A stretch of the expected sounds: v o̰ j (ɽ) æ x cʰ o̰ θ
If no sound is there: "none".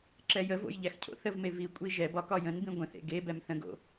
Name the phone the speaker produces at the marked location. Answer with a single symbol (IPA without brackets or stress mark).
ʎ